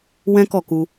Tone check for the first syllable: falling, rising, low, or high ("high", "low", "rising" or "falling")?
high